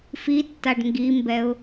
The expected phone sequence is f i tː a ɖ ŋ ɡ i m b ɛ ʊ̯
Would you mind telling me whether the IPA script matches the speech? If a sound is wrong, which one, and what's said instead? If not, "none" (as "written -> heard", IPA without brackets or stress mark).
none